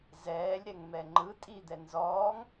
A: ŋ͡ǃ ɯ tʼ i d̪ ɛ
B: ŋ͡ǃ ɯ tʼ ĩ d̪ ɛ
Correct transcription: A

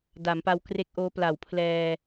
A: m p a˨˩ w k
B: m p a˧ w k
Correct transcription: B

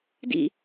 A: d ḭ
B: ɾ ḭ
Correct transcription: A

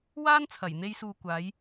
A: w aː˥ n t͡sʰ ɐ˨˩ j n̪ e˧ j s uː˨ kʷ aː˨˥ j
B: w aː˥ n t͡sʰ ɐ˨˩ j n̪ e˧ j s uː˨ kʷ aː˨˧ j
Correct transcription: A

